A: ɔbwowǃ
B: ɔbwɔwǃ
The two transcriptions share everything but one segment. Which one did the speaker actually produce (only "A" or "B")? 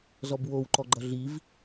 A